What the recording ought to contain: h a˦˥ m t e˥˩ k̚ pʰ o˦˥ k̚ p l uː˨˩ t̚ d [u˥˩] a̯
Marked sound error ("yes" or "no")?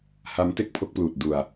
yes